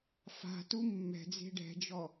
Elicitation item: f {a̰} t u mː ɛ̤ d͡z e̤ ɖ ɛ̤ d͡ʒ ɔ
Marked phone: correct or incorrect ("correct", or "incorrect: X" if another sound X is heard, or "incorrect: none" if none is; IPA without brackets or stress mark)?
incorrect: a̤